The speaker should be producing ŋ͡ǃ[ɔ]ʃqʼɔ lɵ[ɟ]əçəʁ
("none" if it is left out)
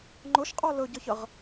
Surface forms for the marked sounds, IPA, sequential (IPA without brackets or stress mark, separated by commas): ʊ, ɟ